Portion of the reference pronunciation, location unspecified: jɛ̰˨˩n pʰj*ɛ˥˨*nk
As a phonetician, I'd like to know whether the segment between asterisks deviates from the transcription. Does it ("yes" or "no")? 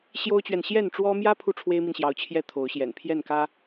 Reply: no